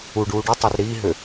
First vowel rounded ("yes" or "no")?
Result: yes